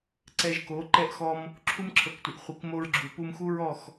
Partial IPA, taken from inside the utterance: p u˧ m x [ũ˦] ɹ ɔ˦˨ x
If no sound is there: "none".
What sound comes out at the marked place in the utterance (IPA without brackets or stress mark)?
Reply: u˦